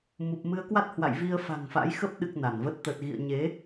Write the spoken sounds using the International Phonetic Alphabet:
m u˨˩ p̚ m ɨ˨˦ ə̯ k w a˦˥ t̚ h w a̰˧˨ j v i˧ ə̯ f a̤˨˩ ŋ f a̰˧˥ j x ə˦˥ p̚ ɗ ɨ˨˩ k̚ n a˧˩ n v ə˦˥ t̚ t̪ ə˨˩ t̚ ɣ ḭ˧˨ ə̯ ɲ e˨˦

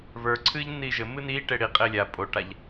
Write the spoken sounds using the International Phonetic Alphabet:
β ə˞ ǀʰ ɨː ʎ nː iː ʒ ɘ m ɨ n iː ʈ e ɽ i qʼ e lʲ a pʼ o ʈ a ʎ

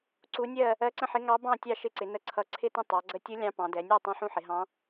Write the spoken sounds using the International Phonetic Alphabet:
ǀ u˧˥ nʲ ɜ˥˨ | ɜ˧˥ ǀ ə̃˥˨ ħ ɪ˧˥ ŋ ɑ˧˥ b ɑ̃˥˨ tʲ ɑ˥˨ ʃ ɪ˧˥ ǀ ɪ˩˧ n ə˧˥ ǀʰ ʌ˧˥ ǀʰ ɪ˥˨ t ə̃˥˨ tˤ ɑ˩˧ ɡ͡ǀ ə˧˥ tʲ u˧˥ lʲ ɑ̃˧˥ p ɑ̃˩˧ d ɛ˩˧ nʲ ɜ˥˨ tˤ ɑ̃˥˨ ħ ũ˥˨ ħ ɪ˩˧ ɦ ɑ̃˧˥

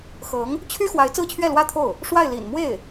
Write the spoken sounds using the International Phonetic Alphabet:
x ɤ˧˥ ŋ | t͡ɕʰ y˥ x w a˧˥ ɪ̯ t͡s ɹ̩˥˧ t͡ɕʰ ɥ ɛ˥˩ l w ä˥ t̪ʰ o˥˩ ʊ̯ | ʂ w a˥˩ ɪ̯ l ḭ˨˩ n m w e˥˩ ɪ̯

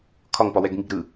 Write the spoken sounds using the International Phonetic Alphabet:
kʰ ɒ ŋ p ɒ w ɛ ɡ ŋ i ɡ ɾ ɯ

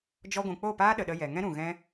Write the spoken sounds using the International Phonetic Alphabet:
d͡ʒ ɔ˧ ɡʷ ũ˨ k͡p o˦˨ p aː˦ ɗ ə˨ ɗ ə˧ j ɛ˨ ŋ ɛ̃˦ ɾ ũ˨ ɣ ɛ̃˦

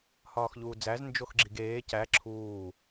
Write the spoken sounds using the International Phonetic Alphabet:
h ɒː x ʎ uː d͡z æ z n d͡ʒ o x ɡ͡ǁ i ɡ eː c æ ǁʰ uː

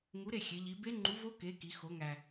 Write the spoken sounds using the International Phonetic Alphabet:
ŋ u˨˥ ɾ e˥˨ xʲ e˩˧ ʎ i˩˧ b e˦˥ ŋ͡ǃ u˨˥ v o˦˥ k e˨˥ k i˩˧ x o˩˧ ŋ æ˩

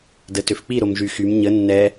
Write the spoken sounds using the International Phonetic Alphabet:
d ə t ø f k͡p i ɾ o m ʒ y x y m ɲ ə nː ɛ

